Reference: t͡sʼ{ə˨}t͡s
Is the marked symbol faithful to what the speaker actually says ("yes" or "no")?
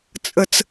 yes